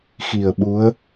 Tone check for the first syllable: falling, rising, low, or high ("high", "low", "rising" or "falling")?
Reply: low